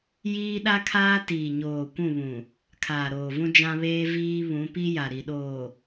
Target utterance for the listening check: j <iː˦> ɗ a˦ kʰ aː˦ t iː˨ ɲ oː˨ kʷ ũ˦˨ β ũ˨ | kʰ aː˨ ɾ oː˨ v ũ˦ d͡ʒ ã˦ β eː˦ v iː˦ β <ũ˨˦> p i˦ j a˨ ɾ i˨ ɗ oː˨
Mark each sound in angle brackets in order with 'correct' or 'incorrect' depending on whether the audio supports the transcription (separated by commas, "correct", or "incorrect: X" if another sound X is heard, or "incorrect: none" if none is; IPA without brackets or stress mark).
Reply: correct, correct